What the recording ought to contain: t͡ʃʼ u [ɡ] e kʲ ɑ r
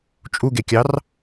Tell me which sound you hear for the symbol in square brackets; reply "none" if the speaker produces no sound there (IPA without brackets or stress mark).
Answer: ɡ